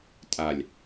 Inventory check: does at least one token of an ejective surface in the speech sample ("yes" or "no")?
yes